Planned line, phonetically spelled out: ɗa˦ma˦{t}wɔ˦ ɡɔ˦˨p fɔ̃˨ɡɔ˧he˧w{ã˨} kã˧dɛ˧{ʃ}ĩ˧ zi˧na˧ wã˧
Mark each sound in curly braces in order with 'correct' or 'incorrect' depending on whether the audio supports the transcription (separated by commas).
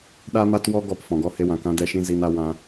correct, correct, correct